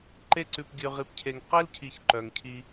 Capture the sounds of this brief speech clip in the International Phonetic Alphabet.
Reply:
ǃ e˦ ǀ ʉ˧ p ɡʲ ʉ˧ ʁ i˧ p cʰ e˧ ŋ q e˦ l cʰ i˨ ç ǃ œ˨ ŋ cʰ i˧

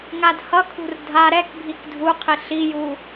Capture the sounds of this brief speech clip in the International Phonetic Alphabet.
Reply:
ŋ a d h ʌ kʰ ṳ r dʱ a ɾ ɛ k bʱ i k dʱ u qʰ i ɬ i j u

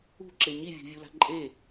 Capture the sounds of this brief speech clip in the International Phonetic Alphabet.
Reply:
ṳ ǁ e ɲ i vʲ ṳ vʲ u l a̤ ǃʼ e

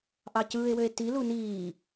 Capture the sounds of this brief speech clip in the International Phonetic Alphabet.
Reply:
ʔ ɑ c ɯː e̯ w ø e̯ t i l u n iː

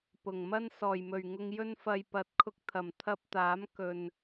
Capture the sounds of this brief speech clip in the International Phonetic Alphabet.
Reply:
p ʊ˨˩ ŋ m ɐ˧ n s ɔː˨˩ j m ɵ˨˩ ɥ ŋ ʊ˧ ŋ j ɵ˧ n f ɐ˨ j p ɐ˨ t̚ kʰ ʊ˧ k̚ t̪ʰ ɐ˨˩ m t̪ʰ ɐ˧ p̚ t̪ aː˨˥ m k ɵ˨ n

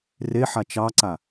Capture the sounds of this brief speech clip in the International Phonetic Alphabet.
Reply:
r e ħ a t͡ʃ ɑ ǀ a

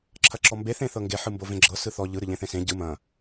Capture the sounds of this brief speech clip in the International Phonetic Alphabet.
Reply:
ǁʰ ɐ ǁ ɔ m b e θ ẽ θ ɤ ŋ ɡ e ħ ɯ m b o v ẽ ɡ͡ǁ ɤ s ɯ θ ɔ ʎ ɯ ɾ ɯ ʎ ẽ θ ẽ s ẽ ɟ ɯ m ɐ̃

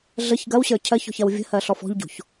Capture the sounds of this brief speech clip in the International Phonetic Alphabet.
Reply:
ɮ ə ç ɡ ɐ w ɕ ə˞ cʰ ɜ ç ɔ̤ ç ɐ w vʲ ə̤ h ɜ ɬ ɔ f ɔ̤ ʎ ɟ o̤ ç

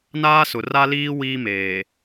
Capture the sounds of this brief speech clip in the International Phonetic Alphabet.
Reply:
n aː˦ s ʊ˨ r a˦ l iː˦ w iː˦ m eː˨

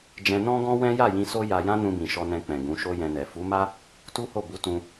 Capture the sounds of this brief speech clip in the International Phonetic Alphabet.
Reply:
d͡ʒ ɛ̃˧ n ɔ̃˦ ɡ ɔ̃˦ w ɛ̃˦ j a˦˨ j ĩ˧ s o˦ j a˧ j ã˦ n ũ˧ b ĩ˨ ʃ ɔ˧ n ɛ̃˧ k͡p ɛ̃˨ ɡ ũ˨˦ ʃ o˦ j ɛ̃˧ n ɛ˨ f u˨˦ m a˦ | t u˦ h o˦˨ b u˨˦ t ũ˧

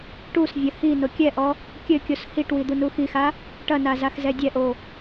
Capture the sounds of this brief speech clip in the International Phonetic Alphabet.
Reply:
ʈ u s vʲ ɐ h i n o kʲ ɛ ʔ ɔ | kʲ ɘ kʲ o s h i ʈ w i d̪ u n u x i x a | ʈ ɐ n a z a x z ɛ dʲ ɛ ʔ o

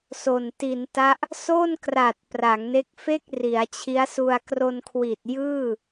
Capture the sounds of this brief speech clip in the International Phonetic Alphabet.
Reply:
s o˨˩ n t i˩˦ n t a˦˥ ʔ | s o˥˩ n k r a˨˩ t̚ p r a˩˦ ŋ n e˦˥ k̚ f e˥˩ k̚ r i˩˦ a̯ t͡ɕʰ i˦˥ a̯ s u˧ a̯ k r o˧ n kʰ w i˨˩ t̚ j ɯː˥˩

